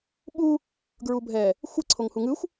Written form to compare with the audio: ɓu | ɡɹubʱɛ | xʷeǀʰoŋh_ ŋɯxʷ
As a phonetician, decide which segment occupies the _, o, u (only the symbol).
u